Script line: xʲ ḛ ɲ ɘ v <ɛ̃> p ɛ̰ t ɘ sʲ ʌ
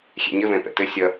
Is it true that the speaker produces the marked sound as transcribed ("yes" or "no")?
yes